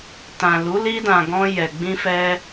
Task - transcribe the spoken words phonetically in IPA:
tã˨lu˨˦ li˧dã˨ ɡɔ̃˧ jɛ˨ɡ͡bĩ˧fɛ˧

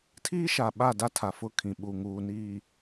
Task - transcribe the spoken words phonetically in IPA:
tʰiː˦ʃa˨ ɓa˦˨da˦ tʰa˨fʊ˦˨ kʰĩ˨ɓu˨ ŋuː˨niː˨

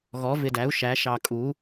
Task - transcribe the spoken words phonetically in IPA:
ɣɔ˩˧vɪ˨˩dæ˩˧u̯ ʃæ˩˧ ʃɑ˨˩kʼu˩˧

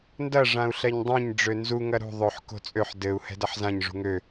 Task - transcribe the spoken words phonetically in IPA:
ndɐ ʐãu̯ɬɛɲdˤɛ̃ɲ ɖ͡ʐønzu ŋɐɾṳ ðˤøħ ko̤t͡sʼøħ dɘu̯ hɛ̤dɐħzãɲ ʐṳŋø

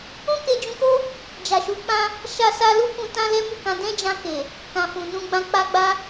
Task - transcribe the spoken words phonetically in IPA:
ũ˦ke˧d͡ʒũ˧ko˦ | d͡ʒa˨ʃu˨˦ k͡pã˦ | ʃa˦sa˦ lu˦kũ˧ tã˦lɛ˦mu˦˨kã˧ dɛ̃˦d͡ʒã˧ ke˨ | kã˨ fũ˨nũ˧ɡ͡bã˧ k͡pa˦ɡ͡ba˦

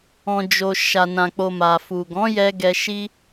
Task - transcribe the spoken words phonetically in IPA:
ɔ̃˨d͡ʒo˨ ʃa˨nã˨k͡po˨ ma˨fu˨ɡɔ̃˨˦jɛ˧ ɡɛ˧ʃi˦

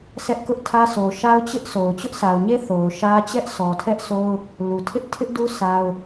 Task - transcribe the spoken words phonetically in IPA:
sʰɛ˦ʔkʊ˦ʔtʰä˦ so˨ʃa˦ʊ̯t͡ɕɪ˦ʔso˨ʊ̯ t͡ɕʊ˦ʔsa˨ʊ̯ɲe˦ θo˨ʊ̯ʃä˦ t͡ɕɛ˦ʔsɔ˨tʰɛ˦ʔsʰo˦ʊ̯ | lu˨tʰɪ˦ʔ tʰɪ˦ʔdu˦ sʰa˦ʊ̯

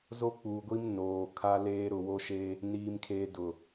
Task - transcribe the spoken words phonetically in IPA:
zo˦k͡puː˨ɡʷi˦m noː˨ kʰa˦leː˦ ɾʊ˨wo˦ʃeː˦ | niː˦mkʰeː˦ dʊ˨

